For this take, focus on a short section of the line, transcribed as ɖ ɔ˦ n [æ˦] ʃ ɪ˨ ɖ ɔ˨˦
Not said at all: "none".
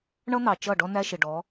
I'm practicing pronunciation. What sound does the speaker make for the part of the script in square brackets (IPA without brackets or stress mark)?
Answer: æ˦